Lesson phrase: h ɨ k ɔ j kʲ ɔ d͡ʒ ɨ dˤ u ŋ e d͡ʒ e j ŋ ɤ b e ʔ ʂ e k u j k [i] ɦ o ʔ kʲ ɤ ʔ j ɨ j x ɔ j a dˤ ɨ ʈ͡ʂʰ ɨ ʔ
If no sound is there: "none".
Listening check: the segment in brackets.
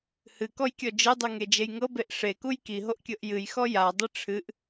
i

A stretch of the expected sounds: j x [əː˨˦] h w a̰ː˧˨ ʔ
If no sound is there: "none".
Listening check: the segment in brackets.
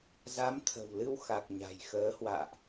əː˨˦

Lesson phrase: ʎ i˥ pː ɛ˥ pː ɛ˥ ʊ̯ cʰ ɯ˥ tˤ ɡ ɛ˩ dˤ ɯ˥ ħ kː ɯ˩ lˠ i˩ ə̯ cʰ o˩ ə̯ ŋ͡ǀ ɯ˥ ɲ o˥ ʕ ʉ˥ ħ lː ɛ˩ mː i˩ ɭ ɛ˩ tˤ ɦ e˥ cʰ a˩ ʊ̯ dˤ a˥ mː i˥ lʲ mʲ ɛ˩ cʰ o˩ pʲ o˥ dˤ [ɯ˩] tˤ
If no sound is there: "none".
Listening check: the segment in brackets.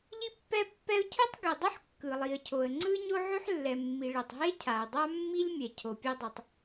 ɯ˩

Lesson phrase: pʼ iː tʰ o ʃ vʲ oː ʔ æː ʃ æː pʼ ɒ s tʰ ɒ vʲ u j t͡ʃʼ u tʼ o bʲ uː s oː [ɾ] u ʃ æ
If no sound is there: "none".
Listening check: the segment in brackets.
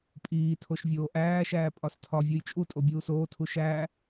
tʰ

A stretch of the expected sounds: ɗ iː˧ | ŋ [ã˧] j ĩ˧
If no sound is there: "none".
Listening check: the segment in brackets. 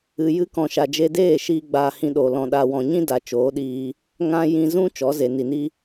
ã˦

